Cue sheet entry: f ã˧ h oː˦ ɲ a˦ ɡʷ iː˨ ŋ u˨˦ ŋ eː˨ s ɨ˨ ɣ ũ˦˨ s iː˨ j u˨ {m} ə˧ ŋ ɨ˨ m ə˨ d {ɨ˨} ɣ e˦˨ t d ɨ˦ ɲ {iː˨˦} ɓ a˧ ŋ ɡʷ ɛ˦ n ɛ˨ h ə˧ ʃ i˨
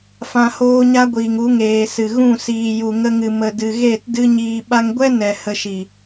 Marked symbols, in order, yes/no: no, yes, no

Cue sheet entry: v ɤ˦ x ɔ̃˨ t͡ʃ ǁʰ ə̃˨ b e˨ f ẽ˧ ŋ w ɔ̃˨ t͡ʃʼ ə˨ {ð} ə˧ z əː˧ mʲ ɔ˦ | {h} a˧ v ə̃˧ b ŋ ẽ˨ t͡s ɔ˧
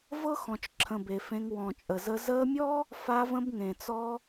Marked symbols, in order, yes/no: no, no

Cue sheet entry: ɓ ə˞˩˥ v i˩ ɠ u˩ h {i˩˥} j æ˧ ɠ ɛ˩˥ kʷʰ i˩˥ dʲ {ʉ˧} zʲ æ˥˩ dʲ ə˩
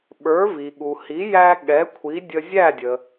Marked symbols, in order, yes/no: yes, no

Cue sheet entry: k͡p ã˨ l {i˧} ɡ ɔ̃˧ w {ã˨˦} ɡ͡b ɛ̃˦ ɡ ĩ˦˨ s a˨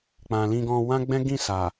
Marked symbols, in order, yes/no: no, no

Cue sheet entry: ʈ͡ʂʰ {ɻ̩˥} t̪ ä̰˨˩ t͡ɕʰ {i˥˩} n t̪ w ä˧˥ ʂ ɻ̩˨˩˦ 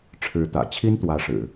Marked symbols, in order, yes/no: no, no

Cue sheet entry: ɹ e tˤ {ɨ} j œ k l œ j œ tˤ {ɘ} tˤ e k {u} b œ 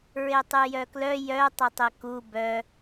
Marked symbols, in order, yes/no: yes, yes, yes

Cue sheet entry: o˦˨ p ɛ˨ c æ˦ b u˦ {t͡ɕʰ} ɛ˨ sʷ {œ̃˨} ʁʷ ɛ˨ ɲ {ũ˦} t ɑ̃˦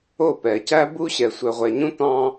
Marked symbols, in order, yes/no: no, no, yes

